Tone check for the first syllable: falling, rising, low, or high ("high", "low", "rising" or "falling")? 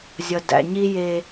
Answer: low